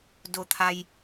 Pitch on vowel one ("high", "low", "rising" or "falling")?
low